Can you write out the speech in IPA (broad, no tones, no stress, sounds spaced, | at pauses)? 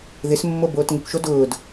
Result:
ð ɪ s mː o b oː t ŋ ɪ kʷ ʃ o d ʊː d